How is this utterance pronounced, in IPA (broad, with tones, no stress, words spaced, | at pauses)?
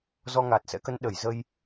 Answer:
zɔ˧ŋaː˨˩t̚sɛ̰˧˥kə˨˦n ɗə˧˩j zə˧j